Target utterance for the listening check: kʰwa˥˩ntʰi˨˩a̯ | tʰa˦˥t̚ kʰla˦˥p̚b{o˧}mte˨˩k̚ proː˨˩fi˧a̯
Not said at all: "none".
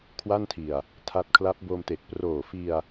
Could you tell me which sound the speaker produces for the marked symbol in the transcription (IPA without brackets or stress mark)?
o˧